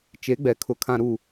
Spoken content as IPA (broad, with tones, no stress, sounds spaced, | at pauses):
t͡ʃ e˨˦ ɡ͡b ɛ˨ kʰ ʊ˨ kʰ ã˨ ɾ u˨